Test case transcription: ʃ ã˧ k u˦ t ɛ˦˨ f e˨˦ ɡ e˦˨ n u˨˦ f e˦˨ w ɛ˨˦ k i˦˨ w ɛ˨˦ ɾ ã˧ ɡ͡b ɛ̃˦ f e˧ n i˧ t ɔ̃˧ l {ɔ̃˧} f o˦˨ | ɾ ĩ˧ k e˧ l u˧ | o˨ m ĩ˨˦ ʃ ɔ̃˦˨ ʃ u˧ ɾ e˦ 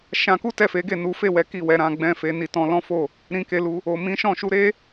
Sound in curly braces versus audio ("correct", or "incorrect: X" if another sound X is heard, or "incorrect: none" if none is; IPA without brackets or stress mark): incorrect: ɔ̃˦